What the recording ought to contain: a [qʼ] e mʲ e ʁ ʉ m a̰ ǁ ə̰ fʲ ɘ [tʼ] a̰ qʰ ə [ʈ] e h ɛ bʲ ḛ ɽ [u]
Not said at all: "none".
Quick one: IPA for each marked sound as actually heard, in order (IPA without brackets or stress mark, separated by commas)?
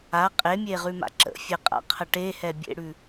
qʼ, qʼ, ʈ, ʉ